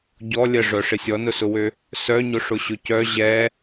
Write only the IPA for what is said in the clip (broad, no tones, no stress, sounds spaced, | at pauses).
ɟ ɔ lʲ ə ʐ œ ʂ ɪ sʲ ɔ n ʊ s ʊ w ø | s œ ɲ ʊ ʂ ʊ ɕ ʊ c œ ʑ ɛ